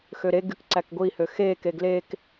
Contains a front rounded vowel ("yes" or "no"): yes